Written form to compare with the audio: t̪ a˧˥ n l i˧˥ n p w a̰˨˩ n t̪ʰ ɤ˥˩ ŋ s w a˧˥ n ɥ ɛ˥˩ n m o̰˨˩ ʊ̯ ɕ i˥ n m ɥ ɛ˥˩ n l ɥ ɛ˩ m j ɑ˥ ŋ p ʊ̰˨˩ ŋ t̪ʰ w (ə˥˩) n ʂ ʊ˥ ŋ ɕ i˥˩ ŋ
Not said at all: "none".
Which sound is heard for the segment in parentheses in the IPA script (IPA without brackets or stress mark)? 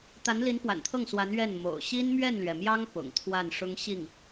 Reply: a˥˩